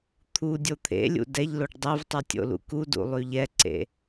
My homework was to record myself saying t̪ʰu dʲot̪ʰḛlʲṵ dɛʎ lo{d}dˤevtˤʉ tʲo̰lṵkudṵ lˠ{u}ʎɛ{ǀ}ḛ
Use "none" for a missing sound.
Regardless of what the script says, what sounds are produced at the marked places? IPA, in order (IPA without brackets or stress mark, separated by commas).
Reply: ɖ, ʉ, ǀ